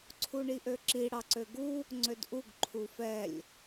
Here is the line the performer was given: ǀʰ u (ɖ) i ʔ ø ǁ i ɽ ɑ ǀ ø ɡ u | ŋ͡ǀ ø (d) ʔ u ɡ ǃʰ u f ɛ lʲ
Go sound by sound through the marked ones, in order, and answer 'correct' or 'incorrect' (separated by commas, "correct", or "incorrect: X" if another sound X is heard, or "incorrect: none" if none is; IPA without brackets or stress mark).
incorrect: ɳ, correct